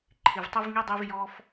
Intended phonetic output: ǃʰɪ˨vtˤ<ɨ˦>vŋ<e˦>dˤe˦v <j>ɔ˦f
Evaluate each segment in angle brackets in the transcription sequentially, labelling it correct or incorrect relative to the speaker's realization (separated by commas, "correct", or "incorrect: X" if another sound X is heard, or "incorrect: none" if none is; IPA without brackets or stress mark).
incorrect: ɪ˦, incorrect: i˦, correct